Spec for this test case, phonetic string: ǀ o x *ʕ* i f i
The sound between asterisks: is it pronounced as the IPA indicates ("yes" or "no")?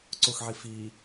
yes